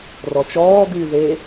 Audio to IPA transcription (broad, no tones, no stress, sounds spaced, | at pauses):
r ɔ t͡ʃ ɔː ɡ yː ð e